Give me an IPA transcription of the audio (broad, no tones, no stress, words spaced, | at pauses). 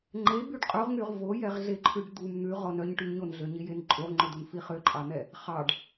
ŋ͡ǃebyɖ qʼʉʁŋyʁ vojɛʁɮeǃʰʉɖ d̪um n̪ʉʁɔnœɲʈy ɲonɮøɲijen ǃʼuʁŋ͡ǃɵd̪ɵnfi χøǃʼɑn̪ɛ | χɑɖ